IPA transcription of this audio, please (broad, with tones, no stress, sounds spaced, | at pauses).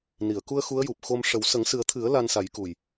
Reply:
n i˨˩˨ ə̯ k u˧ ə̯ x u˧˥ ə̯ j u˨˩ p̚ x o˧ m ʂ ə˨˩˦ w s ə˨˩˦ ŋ s ɨ˨˩˦ ə̯ t̪ʰ ɨ˨˩˦ ə̯ l a˧ n s a˨˩˦ j k u˨˩ j